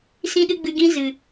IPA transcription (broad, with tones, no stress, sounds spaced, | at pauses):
s ĩ˦ ɗ ɨ˦ ɡ͡b ɨ˧ ɡ ĩ˦ z ɨ˨